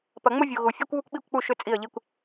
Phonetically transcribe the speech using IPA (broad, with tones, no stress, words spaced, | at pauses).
pɐ˨ŋ͡mʊ˦vʲu˨ ɣu˨ fʲe˦kʷ βu˦kʷɓi˦˨kʷk͡pu˦˨ ʃʏ˦t͡sʼi˦˨ə̯ʎi˦kʷ